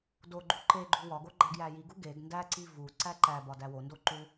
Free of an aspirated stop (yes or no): yes